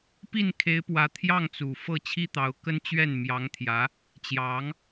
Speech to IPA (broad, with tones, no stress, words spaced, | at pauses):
pi˥˩nkʰe˧˥ɪ̯pwä˧˥ t̪ʰjɑ˥˩ŋt͡su˨˩ fɤ˥˩t͡ɕʰi˥t̪ɑ˧˥ʊ̯kə˥n t͡ɕɥɛ˥˩nmjɑ˧˥ŋt̪ʰjä˧˥ | t͡ɕjɑ˧˥ŋ